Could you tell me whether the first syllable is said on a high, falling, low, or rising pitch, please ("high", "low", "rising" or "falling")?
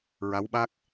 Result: rising